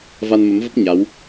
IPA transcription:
v a˧ n m ə˨˦ m v ə˦˥ p̚ ɲ a˨˦ w

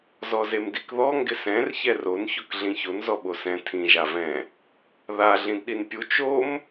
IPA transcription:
z ɔ z e m d i k ð ɔ ŋ ɡ ɪ s ɛ̃ r ç ɛ r o n ç o k ɮ ĩ ç o n z ɔ ɓ o s ɛ̃ tʰ ĩ ʒ a v ɛ̃ | ð a ɮ ĩ d ɗ i n pʲ u t͡ʃ o m

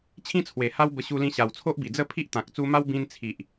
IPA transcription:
t͡ɕʰ ĩ˦ t͡sʰ w e˨˩ h a˦ w b ə˧ ɕ u˧ l ĩ˧ ɕ a˨˩ w t͡sʰ o˦ ʔ b i˨˩ d͡z ə˥˧ pʰ i˦ ʔ t̪ ã˨ k̚ t͡s u˧ m a˦ w b ĩ˧ n t͡sʰ i˨ ʔ

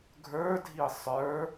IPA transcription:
ɡʱ ə˞ dʱ i sˤ ə˞

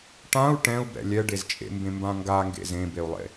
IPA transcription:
ʈ ã u̯ ʈ ɛ̃ u̯ b ɛ̰ lʲ ɛ ɖ e z t͡ʃʼ ḛ m b ẽ m b ã ŋ ɡ a ŋ ɡ ḛ z ẽ b e u̯ lˠ ḛ

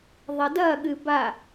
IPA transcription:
ðˤ ɐ d ɐ ɠ ɨ b a

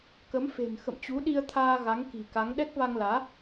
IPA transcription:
k ə˨˦ m f e̤˨˩ n x ə̰˧˨ m t͡ɕ u˨˦ ɗ i˧ ə̯ t̪ʰ aː˧ ɣ a˨˦ ŋ k i̤˨˩ k a˨˦ ŋ ɗ ɛ˦˥ k̚ v a˧ ŋ l aː˨˦

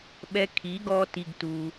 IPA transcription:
ɓ ɛ˧ kʰ i˨˦ ɡ ɔ˧ t i˧ ɡ t u˧

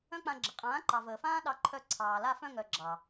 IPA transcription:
œ̃˦ k͡p ã˧ ɡ͡ǁ ə˨ qʼ ãː˨˦ ǃ ɑ˨ v əː˨ f ãː˦ ɗ ɑ˧ ǃʰ œ˧ ǀʰ ɑː˨ l a˧ f œ̃˧ ŋ œ˨ ɡ͡ǁ ɑ˨

